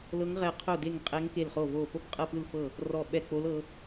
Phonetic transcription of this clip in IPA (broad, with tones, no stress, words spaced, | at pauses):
lɤ˦˥ŋʁɛ˦˨ qʰo˦˨de˦˨ŋ qʼɛ˦˥ŋke˦˨lχo˦˨ vo˦˨ po˦˥bqʼɤ˦˨pɯ˦˨lfɤ˦˨ | rɔ˦˨ɓɛ˦˨k͡po˦˥lɤ˦˥